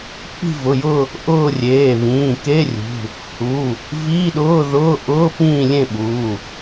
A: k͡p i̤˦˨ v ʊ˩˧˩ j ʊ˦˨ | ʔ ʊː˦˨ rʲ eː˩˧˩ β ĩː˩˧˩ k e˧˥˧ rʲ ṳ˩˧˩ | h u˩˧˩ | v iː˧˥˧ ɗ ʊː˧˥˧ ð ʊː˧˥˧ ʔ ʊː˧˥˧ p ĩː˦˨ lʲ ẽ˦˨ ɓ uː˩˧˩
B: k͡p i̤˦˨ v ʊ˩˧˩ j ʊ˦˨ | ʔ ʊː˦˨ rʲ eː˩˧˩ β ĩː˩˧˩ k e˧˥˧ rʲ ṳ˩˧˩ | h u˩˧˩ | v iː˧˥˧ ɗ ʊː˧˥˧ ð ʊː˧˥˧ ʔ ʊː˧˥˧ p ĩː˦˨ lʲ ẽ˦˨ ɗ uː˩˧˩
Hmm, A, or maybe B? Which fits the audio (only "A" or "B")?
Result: A